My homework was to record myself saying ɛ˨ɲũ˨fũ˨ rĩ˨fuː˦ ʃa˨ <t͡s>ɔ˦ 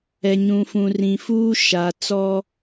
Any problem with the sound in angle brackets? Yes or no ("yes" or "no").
no